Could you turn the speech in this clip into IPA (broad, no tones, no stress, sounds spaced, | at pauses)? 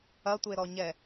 ɐ tʷ e ɾ ɔ ɲ ɛ